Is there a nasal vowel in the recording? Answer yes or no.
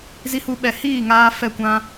yes